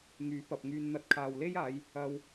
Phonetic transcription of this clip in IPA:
ŋ yː˨˥ p ɐ˨ p̚ ŋ yː˧ n n̪ ɐ˧ t̚ kʰ aː˨ w l e˥ j aː˨˧ j | ɐ˧ w

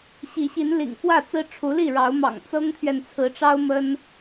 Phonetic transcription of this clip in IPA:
ɕ i˨˦ ɕ i˨˦ n l ḭ˨˩ ŋ f w ä˥˨ t͡s ɹ̩˦ ʈ͡ʂʰ u˨˦ l i˥˨ ɻ ɑ˨˦ ʊ̯ m ɑ̰˨˩ ŋ t͡s ɤ˦ ŋ t̪ʰ ɥ ɛ˨ n t͡sʰ ɹ̩˨˦ ʈ͡ʂ ɑ˦ ʊ̯ m ə˦ n

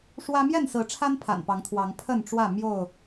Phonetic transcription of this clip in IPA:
ʂ w ä˦ m j ɛ˥˨ n s ɹ̩˨˦ ʈ͡ʂʰ a˦ n pʰ a̰˨˩ n p ɑ˨˦ ŋ t̪ʰ w ɑ˨˦ ŋ pʰ ə˥˨ n ʈ͡ʂ w ä˥˨ m j o˥˨ ʊ̯

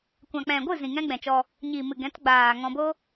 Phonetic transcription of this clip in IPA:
kʷ ã˨ k͡p ɛ̃˨ ɡʷ ɨ˦˨ z ĩ˨ ŋ ɛ̃˦ ɡ͡b ɛ̃˨ t͡ʃ ɔ˧ | ɲ iː˨ m ɨ˨ ɡ ɛ̃˨˦ t ɡ͡b aː˨ ŋ ɔ̃˧ b o˦

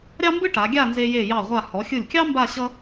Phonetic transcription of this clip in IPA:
ɾʲ ɑ˥ m b ɯ˥ ʈ a˩˧ ɡʲ a˥˧ n z e˧ j e˧˩ j ɑ˧˩ ʁʷ a˧˩ h ɔ˩˧ xʲ ɯ˧˩ lʲ kʲ ɑ˥ m b a˥˧ ɕ ʌ˥

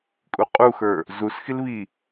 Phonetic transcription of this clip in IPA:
kʼ u qʼ u x ə˞ | z u s x i l β i

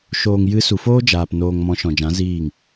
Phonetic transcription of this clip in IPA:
ʃ oː˨ ŋ j ɨ˨˦ s u˨ f oː˦ d͡ʒ aː˨ p n oː˨ ŋ m ɔ̃˨˦ ʃ ɔ̃˨ d͡ʒ ã˨˦ z iː˦˨ ŋ

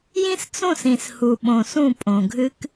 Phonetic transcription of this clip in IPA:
j ĩ˦ s t͡s õ˦˨ s ĩ˨ s h u˨ ɓ õ˨ s ũ˦˨ pʼ õ˨ ɡʱ ɨ˦ k

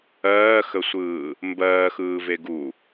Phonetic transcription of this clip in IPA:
ɜː x ə sʷ ɯː | m b ɜː x ɯː v e ɡ u

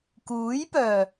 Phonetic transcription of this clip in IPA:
k uː˨˥ j p œː˨˩

